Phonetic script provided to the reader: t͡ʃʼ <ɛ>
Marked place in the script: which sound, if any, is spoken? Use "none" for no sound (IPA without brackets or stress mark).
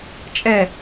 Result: ɛ